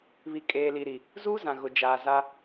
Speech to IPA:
β i˨ kʼ eː˨ l i˨ ɾ i˨ | z uː˦ z ã˨ ɣ ʊ˨ d͡ʒ aː˨ z a˦

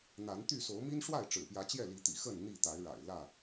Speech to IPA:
n̪ a˨˦ n t̪ y˥˨ s o˨˦ ʊ̯ m i˦ n ʂ w a˥˨ ɪ̯ ʈ͡ʂ ɻ̩˨˩ p j ä˨˦ t͡ɕ j ɛ˥˨ l i˨˦ t̪ ḭ˨˩ x ə˥˨ n n̪ i˥˨ t̪ a˨˦ ɪ̯ ɻ a̰˨˩ ɪ̯ l ä˥˨

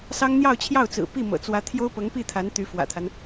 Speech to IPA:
s ɑ˥ ŋ n̪ j ɑ˥˧ ʊ̯ t͡ɕʰ j ɑ˥˩ ʊ̯ t͡s ɹ̩˨˩ p i˥˩ m ɤ̰˨˩ t͡s w ä˧˥ t̪ʰ j o˥ ʊ̯ p ɤ˧˥ ŋ p i˥˩ t̪ʰ a˧˥ n t̪ y˧˥ f w ä̰˨˩ t̪ʰ a˦ n

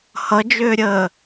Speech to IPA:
h ʌ d͡ʒ ʏː ɾʲ əː

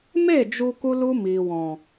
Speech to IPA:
m e˦˨ d͡ʒ u˧ k u˦ l u˦ m iː˨ w ɔ̃˨

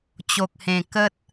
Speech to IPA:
t͡ɕ o˨ k̚ h ẽ˨˩ k ə˦ t̚

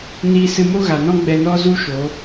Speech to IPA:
n iː˧ s ɨ˧ m o˦ ɣ a˨ n ɔ̃˦ ɡ͡b ɛ˧ n ɔ˦ z u˦ ʃ o˨˦

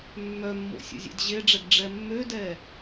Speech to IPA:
mː œ mː o̰ sʲ o̰ zʲ ḛ d ʑ e ɖ͡ʐ ɛ ɡ ɖ͡ʐ ɛ mː ø d ɛ

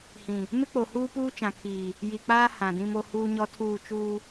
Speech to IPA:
h ĩ˨ | m ɪ˦ k͡p o˨ h uː˦ p uː˦ t͡ʃ ã˨ kʰ iː˨ | j i˨ k͡p aː˦ h ã˨ d ĩ˦ m o˦ h uː˦ ɲ ɔ˦ tʰ uː˦˨ t͡ʃ uː˦

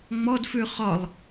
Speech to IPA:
ŋ͡m ɔ d f ʉ χ ɒ lˠ

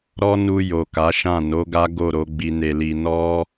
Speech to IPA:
ɾ ɔ˦ n u˧ j o˨ k a˨˦ ʃ ã˦˨ n o˨˦ ɡ a˦ ɡ o˦˨ ɾ o˨˦ ɡ͡b i˧ n e˧ l i˧ n ɔ˦

